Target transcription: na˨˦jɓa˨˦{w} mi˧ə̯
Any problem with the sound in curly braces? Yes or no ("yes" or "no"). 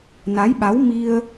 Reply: no